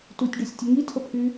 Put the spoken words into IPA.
tutʲɖusʲtʲə ŋitʰəpʰy

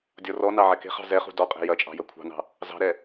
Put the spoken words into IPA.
dʲɔrɔnɑ ʕɛke̤χɑ̤ zɛχṳ dɔqʼe̤ jɐt͡ʃʼɑ̤ jɐkʷʰɑ̤nɑ̤ | zɑ̤ɾɛ

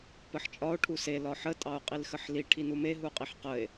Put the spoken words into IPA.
pəħt͡ʃʼɒo̯ ʈʰuse lɒħə tʼɑo̯qʼilxəħli ʈʰinume ɦuqʼiħqəe̯

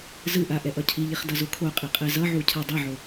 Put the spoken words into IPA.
zɯʔa ʔɛʔʌcʰiʎiχ dʌzokʰoqʼi qʼɛzʌʕu cʰadˤʌʕo

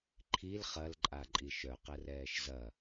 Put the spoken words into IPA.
ǃʰil χɐlǃʼaǃʼi ʃœqɛrɛːʃ zɐ

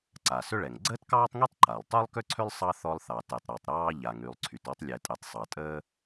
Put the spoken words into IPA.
ǀa˩ sʏ˥ɭɛ˩ŋ ɡ͡ǀəː˥tkɑː˥tˤŋy˥tˤ ǃa˩lˠtˤy˥lˠkʏ˥ǀʰʏ˥lˠ sˤɑ˥ θɔ˥lˠθɑ˩tɛ˩tˤ ɾɔ˩tˤɾɑː˥ ʎa˩ŋy˩lˠ ǀʰy˩tɔ˥tˤ lʲɛ˩tʼɛ˩tˤ sˤɑ˩tʼəː˥

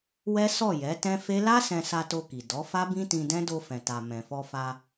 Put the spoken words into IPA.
wɛ˦sɔ˦˨ jɛ˨˦ tɛ̃˦fe˦ la˦ sɛ̃˧sa˧to˧ki˨ dɔ˨˦ fa˦bĩ˦tĩ˧dɛ̃˦ do˧fɛ̃˨ta˨ mɛ̃˨fɔ˧fa˧

